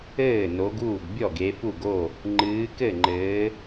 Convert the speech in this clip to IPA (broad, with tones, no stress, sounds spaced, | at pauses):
ɘː˥˩ n o˨˦ ɡ uː˥˩ ɡ bʲ ɔ˥˩ ɡ e˨˦ f u˥˩ ɡ o˥˩ | ŋ͡ǃ ɨː˨˦ k ɘ˥˩ ŋ͡ǃ ɘː˨˦